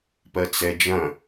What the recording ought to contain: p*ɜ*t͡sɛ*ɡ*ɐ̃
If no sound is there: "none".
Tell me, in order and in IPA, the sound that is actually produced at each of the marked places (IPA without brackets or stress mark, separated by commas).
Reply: ɜ, d͡ʒ